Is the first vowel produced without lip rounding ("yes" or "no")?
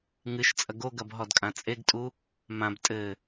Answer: yes